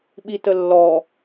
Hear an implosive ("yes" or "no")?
yes